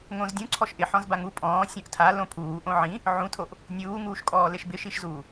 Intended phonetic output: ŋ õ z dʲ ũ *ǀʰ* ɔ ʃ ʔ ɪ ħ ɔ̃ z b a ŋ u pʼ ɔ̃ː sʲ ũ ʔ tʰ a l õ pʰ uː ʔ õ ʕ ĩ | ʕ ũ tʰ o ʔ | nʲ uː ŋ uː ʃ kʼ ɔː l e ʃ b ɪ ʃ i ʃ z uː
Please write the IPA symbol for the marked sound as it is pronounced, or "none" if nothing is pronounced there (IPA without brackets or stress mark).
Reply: ǀʰ